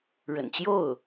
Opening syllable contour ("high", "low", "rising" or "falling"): low